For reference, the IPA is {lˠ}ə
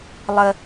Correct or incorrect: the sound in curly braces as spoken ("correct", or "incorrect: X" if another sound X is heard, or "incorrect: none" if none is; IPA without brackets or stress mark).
correct